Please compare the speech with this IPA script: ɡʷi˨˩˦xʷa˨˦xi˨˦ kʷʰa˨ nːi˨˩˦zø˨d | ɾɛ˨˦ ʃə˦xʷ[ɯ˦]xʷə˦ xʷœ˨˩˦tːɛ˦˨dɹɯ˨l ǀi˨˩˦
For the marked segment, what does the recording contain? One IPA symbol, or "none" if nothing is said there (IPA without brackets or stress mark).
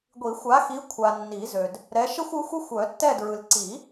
ɯ˨˦